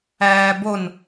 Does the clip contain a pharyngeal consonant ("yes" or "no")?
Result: no